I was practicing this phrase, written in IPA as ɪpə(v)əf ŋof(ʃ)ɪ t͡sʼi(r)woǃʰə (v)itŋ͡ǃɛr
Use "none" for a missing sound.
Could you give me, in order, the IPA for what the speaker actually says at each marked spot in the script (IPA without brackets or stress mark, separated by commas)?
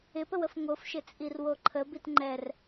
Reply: w, ʃ, r, b